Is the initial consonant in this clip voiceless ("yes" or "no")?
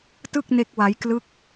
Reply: yes